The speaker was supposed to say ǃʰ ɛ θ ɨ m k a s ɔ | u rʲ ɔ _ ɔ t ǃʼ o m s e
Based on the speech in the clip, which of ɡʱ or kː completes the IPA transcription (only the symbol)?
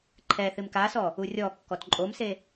kː